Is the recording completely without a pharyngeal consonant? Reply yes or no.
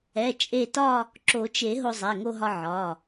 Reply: no